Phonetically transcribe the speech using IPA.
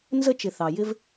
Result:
n z ə˧ t͡ʃ ɪ˩ θ ɑ˩ j ɪ˧ v

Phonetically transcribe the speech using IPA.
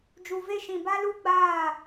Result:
d͡ʒ u˨ v e˦ ʃ ĩ˨ b a˦ l u˦ ɡ͡b aː˦˨

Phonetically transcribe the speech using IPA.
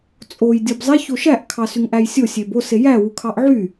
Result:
t͡sʼ o j dʲ o b zˤ e ç o ʃ æ ʔ kʰ ɑ s y ŋ ʔ æ j sʲ o sʲ e b o s e j æ w u kʰ ɑ ʔ ʕ y

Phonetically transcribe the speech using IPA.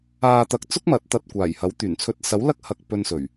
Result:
aː˨ t̪ ɐ˨ k̚ t͡s ʊ˥ k̚ m ɐ˨˥ t̚ t̪ ɐ˨ t̚ kʷ aː˨˩ j h ɐ˨˥ w t̪ yː˨˩ n t͡sʰ ɵ˧ t̚ s ɐ˨˥ w l ɐ˥ k̚ h ɐ˧ k̚ p ɵ˧ n s ɵ˨˩ ɥ

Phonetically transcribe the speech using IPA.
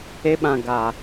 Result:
e˦ ɓ ã˨ ɡ a˨

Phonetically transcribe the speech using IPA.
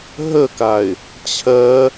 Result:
ɦ ə k a ɪ̯ | t͡ɕʰ ɜ

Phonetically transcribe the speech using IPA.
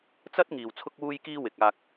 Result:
t͡s ɐ˥ t̚ ŋ iː˨ w t͡sʰ ʊ˥ k̚ w uː˥ j k iː˥ w ɪ˨ k̚ aː˧ k̚

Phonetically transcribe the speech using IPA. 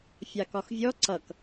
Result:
fʲ ɑ k ɒ x vʲ ɔ ǀ ʌ k

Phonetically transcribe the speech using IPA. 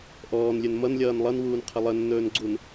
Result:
ʔ ɔː n lʲ ɵ n m ʌ n lʲ ʌː n lˠ ʌ n w uː n qʰ ə lˠ ə nː ɵː n ɡ͡ǀ u n

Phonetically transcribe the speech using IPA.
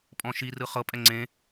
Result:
pʼ ɔ̃ ʃ i r ɯ χ ɤ pʼ ɛ ŋ͡ǀ ẽ

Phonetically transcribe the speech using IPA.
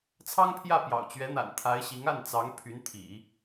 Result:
t͡sʰ ɑ˥ ŋ pʰ j ä˥˩ p j ɑ̰˨˩ ʊ̯ t͡ɕ ɥ ɛ˧˥ n̪ a̰˨˩ n t̪ʰ a˧˥ ɪ̯ ɕ i˧˥ ŋ a˥˩ n t͡s ɑ˧˥ ŋ pʰ y˧˥ n t̪ʰ ḭ˨˩˦

